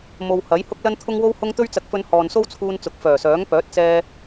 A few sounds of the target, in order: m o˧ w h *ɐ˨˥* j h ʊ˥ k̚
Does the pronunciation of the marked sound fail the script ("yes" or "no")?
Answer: no